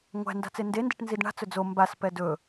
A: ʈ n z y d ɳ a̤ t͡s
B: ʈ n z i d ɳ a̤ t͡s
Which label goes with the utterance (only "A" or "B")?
B